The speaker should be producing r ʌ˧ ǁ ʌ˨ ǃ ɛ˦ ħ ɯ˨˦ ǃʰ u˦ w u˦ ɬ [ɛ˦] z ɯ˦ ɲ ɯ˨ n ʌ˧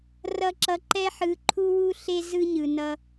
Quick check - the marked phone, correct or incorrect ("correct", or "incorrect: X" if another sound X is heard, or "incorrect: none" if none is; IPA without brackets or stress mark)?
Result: incorrect: e˦